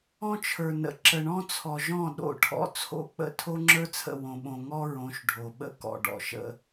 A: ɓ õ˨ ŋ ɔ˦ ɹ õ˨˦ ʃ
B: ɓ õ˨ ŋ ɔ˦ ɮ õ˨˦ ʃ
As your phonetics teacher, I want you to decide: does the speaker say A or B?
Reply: A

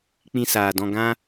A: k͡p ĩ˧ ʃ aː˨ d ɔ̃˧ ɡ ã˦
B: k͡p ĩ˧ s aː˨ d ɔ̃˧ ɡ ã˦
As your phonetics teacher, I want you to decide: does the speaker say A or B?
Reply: B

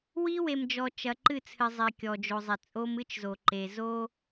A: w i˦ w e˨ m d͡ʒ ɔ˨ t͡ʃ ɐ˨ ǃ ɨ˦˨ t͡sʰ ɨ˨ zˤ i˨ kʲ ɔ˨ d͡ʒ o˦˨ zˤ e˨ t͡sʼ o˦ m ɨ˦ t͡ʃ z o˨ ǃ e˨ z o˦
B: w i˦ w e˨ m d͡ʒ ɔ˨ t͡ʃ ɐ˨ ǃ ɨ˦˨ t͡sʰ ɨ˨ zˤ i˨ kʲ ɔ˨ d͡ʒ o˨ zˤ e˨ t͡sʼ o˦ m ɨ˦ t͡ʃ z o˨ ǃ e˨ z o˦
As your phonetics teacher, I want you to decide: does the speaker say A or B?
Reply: B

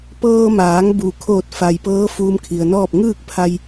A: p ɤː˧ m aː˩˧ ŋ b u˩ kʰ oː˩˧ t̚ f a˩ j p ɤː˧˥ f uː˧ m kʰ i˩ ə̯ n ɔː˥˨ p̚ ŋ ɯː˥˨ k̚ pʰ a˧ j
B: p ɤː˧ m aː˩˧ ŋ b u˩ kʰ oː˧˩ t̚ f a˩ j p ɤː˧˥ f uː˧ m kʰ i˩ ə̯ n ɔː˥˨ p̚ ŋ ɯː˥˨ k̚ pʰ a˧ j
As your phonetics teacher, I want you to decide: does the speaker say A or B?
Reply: B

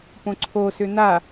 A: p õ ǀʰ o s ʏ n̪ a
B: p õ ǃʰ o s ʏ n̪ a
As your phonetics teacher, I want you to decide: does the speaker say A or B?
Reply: A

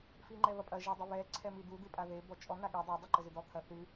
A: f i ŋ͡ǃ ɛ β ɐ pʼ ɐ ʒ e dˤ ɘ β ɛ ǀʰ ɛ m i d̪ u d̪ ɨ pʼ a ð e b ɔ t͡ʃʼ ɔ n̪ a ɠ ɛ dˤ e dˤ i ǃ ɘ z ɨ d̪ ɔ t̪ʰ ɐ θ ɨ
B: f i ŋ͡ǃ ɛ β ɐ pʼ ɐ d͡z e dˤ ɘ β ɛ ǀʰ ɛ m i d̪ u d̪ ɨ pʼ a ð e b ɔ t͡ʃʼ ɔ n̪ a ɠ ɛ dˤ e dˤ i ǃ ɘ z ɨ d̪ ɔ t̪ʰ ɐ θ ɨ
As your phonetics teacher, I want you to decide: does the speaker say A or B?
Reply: A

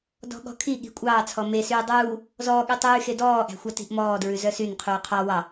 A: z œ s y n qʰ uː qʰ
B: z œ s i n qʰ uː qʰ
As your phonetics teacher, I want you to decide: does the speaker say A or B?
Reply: A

